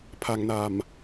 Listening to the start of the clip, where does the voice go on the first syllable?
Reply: low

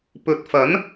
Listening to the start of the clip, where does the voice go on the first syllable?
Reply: rising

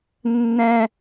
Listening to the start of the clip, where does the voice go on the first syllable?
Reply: high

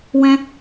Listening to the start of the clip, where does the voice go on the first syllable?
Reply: high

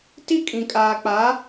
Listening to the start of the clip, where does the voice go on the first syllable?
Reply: high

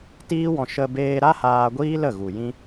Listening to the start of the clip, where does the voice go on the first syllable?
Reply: high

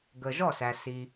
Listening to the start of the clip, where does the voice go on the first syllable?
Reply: low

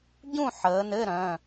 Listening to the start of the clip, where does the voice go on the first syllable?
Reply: falling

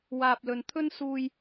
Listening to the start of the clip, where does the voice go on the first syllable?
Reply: low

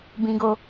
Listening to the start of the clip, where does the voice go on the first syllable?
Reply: high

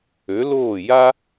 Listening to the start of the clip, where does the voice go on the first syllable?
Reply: rising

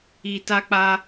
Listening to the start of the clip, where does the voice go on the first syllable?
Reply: low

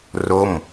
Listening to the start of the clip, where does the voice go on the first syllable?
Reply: falling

